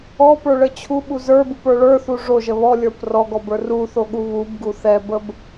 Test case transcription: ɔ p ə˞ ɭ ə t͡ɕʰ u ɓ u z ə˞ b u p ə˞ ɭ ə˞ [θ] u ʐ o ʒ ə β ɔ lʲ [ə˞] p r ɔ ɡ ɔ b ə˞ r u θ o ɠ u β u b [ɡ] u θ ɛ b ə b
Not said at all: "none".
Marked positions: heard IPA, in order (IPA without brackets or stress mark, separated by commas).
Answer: θ, ə˞, ɡ